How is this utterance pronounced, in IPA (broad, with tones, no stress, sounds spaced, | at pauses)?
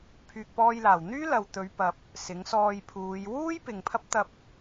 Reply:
pʰ yː˨ k̚ p ɔː˧ j l aː˨˩ w n̪ yː˥ l ɐ˨ w t̪ ɵ˨˧ ɥ p ɐ˨ p̚ | s ɪ˨˥ ŋ s ɔː˧ j pʰ uː˨˧ j w uː˥ j p ɪ˨ ŋ pʰ ɐ˥ p̚ t̪ ɐ˧ p̚